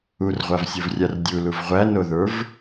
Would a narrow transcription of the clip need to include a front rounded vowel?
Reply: no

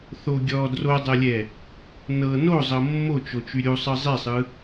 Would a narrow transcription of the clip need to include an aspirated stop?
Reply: no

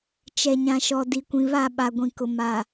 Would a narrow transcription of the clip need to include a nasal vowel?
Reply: yes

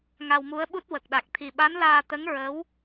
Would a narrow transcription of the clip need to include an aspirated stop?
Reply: yes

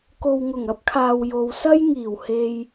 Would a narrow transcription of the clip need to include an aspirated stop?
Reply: yes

